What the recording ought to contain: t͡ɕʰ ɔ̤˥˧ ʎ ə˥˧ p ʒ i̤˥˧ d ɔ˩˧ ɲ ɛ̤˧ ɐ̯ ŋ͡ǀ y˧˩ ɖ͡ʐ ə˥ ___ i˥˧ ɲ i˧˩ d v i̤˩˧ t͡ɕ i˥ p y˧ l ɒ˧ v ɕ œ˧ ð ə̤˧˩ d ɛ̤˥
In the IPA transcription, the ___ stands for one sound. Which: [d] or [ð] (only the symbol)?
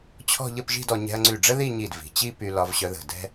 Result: ð